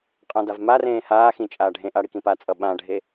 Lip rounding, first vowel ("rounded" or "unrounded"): unrounded